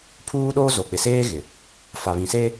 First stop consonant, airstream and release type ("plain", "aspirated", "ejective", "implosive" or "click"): aspirated